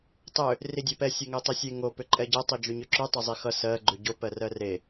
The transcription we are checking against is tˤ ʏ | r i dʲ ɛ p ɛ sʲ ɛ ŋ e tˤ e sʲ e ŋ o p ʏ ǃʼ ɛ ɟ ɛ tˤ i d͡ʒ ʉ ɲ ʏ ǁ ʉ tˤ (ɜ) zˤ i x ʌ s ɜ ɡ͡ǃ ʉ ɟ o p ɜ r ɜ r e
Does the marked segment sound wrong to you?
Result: yes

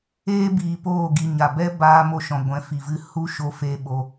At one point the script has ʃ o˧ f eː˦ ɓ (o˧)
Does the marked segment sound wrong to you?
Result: no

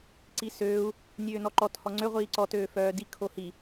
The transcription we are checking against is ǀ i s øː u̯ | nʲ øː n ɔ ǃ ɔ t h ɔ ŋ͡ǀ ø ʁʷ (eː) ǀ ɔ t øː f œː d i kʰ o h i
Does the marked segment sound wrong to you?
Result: yes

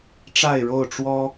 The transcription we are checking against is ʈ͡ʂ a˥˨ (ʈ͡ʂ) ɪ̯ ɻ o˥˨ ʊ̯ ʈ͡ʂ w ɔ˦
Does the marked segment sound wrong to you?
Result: yes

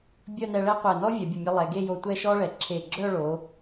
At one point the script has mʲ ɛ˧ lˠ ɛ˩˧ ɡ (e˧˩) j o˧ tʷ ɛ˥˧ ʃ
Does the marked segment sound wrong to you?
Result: yes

